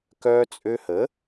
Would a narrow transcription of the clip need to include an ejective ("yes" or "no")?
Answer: yes